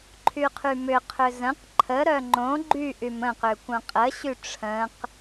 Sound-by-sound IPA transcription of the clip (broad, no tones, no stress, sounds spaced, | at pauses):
ǃʰ y qʰ y m ʏ qʰ ʏ z ə̃ q ǃʰ ə ɾ œ ŋ͡ǃ õ ɡ͡ǃ y ʔ y m ə̃ q ʏ kʷ œ̃ qʼ ə ɕ y ʈ͡ʂʰ ə̃ q